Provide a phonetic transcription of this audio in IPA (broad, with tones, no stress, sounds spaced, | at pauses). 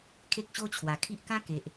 kʰ e˦ k̚ ɕ o˦ t͡ɕʰ w a˨˩ kʰ i˦ ʔ k ã˦ k e˨ ʔ